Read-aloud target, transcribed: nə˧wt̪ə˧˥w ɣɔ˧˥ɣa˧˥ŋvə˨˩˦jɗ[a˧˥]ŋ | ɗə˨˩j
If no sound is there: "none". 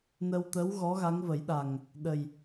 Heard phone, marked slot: a˨˩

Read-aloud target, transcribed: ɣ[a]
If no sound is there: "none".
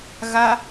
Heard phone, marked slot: a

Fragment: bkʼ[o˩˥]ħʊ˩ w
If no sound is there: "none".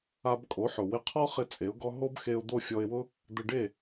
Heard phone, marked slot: o˩˥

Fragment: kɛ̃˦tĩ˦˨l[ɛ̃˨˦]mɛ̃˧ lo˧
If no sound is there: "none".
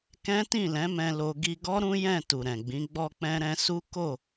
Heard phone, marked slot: ɛ̃˨˦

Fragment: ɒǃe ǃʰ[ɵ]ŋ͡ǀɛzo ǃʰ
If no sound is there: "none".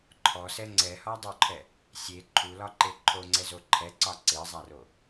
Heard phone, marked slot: o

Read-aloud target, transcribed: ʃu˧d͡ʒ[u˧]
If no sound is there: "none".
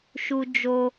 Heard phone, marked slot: o˧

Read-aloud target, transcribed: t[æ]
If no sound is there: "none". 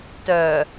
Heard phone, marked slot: œ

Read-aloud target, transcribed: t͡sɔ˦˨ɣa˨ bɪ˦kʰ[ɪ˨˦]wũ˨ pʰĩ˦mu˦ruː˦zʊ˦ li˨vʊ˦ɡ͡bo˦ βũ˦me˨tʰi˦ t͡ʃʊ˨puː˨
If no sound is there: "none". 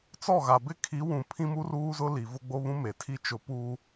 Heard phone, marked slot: i˨˦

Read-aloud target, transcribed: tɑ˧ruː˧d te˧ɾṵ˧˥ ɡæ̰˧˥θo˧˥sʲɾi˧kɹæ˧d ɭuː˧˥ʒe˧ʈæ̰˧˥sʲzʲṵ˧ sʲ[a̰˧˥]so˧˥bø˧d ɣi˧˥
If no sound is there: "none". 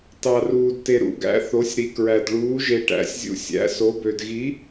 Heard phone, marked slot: æ̰˧˥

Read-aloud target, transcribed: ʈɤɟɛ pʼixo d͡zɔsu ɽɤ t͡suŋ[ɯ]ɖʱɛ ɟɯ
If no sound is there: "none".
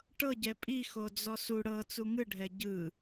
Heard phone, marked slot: ɯ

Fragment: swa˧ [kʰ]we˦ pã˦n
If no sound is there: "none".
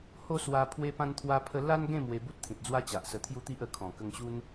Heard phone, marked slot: pʰ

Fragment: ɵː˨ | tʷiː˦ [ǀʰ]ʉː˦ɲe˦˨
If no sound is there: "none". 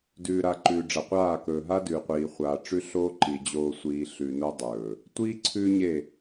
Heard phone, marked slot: ǀʰ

